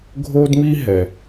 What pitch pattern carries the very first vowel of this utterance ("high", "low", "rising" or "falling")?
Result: high